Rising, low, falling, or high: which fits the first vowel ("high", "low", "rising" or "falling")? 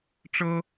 high